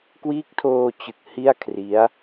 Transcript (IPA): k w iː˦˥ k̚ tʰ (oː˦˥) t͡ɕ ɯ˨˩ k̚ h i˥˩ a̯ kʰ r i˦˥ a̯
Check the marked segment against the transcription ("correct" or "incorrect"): incorrect